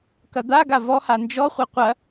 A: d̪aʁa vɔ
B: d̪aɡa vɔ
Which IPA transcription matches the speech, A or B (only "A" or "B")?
B